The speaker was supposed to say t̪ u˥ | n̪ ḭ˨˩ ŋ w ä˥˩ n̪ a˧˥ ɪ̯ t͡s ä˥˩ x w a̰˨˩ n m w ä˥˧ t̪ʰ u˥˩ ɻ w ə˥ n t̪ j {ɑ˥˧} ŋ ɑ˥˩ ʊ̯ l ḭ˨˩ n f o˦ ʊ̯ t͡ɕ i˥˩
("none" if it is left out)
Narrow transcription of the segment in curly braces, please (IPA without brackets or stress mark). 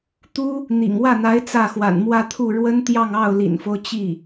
ɑ˥˧